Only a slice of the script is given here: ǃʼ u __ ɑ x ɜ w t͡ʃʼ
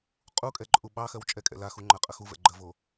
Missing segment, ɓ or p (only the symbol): ɓ